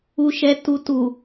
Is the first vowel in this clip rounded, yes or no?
yes